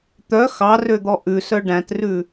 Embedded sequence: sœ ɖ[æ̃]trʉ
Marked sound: correct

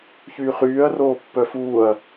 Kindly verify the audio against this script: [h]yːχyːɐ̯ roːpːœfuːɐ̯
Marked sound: incorrect: ç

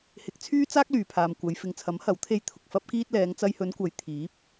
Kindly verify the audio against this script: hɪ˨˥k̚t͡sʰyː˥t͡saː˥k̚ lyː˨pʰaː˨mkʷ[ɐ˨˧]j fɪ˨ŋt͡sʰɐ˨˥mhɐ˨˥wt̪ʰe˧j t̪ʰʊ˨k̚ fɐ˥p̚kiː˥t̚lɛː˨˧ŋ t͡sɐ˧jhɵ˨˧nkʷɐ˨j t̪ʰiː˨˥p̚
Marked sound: correct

